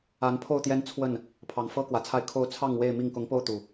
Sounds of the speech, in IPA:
a˨˦npʰo˥˨ʊ̯t̪jɛ˦n t͡sʰwə˥˨n | pʰɑ˨˦ŋfɤ˦kwä˨˩t͡sʰa˥˨ɪ̯ kʰo˥˨ʊ̯ t͡sʰɑ˥˨ŋwe˥˨ɪ̯mi˥˨ŋ kʊ˨˦ŋpo˧ʊ̯ t̪u˨˩

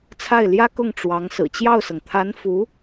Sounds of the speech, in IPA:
t͡sʰa˥˩ɪ̯ljä˥kʊ˥˩ŋ ʈ͡ʂwɑ˧˥ŋ sɹ̩˨˩t͡ɕjɑ˥˩ʊ̯sɤ˩ŋ t̪ʰa˧˥nfu˧˥

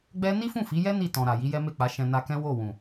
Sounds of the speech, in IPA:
ɡ͡bɛ˦ ni˦fũ˦˨fi˨˦jɛ˦ ni˦˨ tɔ̃˨ɾa˨ ji˨˦jɛ˦me˦˨k͡pa˨˦ ʃɛ̃˧na˧kɛ̃˦ wo˦˨wũ˨

